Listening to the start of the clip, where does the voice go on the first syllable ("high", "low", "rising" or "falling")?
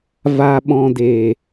high